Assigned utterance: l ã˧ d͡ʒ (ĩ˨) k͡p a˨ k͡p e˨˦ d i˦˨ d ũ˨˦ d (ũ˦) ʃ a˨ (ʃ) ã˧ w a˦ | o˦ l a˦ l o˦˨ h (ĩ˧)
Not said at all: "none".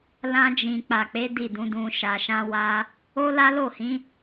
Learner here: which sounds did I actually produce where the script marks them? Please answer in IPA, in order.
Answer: ĩ˨, ũ˧, ʃ, ĩ˨˦

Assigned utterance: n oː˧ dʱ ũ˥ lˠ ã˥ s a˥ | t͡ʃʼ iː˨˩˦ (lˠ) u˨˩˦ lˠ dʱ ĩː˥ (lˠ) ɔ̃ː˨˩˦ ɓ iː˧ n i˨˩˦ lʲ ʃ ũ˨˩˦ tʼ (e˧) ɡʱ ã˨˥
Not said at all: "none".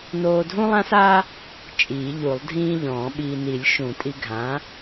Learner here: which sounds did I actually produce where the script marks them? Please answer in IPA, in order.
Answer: ʎ, ʎ, i˧

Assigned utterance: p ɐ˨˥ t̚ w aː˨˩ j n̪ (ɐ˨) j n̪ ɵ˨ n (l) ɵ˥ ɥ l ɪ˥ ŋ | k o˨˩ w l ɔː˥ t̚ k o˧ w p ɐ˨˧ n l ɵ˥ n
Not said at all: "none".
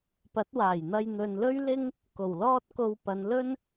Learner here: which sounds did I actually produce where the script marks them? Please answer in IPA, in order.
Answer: ɐ˧, l

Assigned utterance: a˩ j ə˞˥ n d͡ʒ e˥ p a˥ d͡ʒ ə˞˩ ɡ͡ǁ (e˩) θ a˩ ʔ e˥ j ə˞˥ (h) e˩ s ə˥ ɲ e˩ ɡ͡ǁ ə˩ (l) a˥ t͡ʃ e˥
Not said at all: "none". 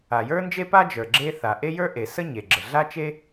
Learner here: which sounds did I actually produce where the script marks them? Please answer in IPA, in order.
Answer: e˥, ʔ, ɮ

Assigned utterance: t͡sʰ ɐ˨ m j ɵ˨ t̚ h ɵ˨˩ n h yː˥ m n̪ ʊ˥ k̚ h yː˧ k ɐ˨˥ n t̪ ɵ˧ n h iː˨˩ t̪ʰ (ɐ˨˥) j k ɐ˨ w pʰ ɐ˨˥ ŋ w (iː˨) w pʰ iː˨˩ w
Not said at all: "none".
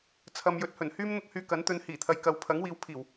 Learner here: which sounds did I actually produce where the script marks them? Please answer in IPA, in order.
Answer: ɐ˨, iː˨˧

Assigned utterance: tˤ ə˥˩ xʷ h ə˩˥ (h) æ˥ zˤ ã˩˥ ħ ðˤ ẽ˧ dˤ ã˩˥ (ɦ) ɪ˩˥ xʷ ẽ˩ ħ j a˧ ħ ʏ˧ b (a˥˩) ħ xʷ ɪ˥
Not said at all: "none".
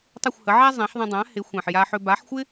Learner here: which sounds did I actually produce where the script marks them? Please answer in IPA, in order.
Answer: ʕ, h, a˩˥

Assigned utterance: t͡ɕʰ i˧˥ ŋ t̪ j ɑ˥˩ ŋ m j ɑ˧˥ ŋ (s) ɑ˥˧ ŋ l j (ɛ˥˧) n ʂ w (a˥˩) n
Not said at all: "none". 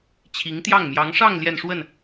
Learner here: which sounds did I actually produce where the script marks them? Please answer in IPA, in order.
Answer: ʂ, ɛ˥˧, ə˥˩

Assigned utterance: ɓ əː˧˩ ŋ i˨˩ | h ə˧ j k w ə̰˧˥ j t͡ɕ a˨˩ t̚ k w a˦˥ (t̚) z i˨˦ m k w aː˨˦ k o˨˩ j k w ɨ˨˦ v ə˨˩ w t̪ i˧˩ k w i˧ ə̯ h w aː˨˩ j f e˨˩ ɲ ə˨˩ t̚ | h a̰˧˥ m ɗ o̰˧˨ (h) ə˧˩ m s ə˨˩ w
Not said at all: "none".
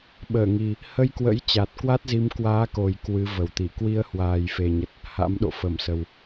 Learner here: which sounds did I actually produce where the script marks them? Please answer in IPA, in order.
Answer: t̚, f

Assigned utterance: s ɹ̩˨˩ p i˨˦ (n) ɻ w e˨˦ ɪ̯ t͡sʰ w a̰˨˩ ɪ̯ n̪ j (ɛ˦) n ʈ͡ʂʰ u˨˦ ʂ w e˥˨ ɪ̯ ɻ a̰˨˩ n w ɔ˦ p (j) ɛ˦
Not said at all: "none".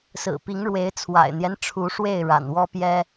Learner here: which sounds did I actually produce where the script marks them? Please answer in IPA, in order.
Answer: ŋ, ɛ˦, j

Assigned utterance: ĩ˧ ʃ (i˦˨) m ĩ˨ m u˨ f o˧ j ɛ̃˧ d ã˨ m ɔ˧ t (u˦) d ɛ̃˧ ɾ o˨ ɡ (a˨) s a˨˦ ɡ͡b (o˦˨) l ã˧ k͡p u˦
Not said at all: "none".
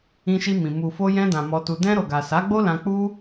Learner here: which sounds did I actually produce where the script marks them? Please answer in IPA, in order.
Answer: i˧, u˧, a˨, o˦

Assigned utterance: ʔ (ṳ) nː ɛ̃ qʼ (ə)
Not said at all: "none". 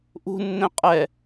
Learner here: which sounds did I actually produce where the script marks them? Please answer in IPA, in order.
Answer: ṳ, ɛ

